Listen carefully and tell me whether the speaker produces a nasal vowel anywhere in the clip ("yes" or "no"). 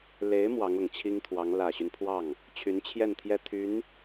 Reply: no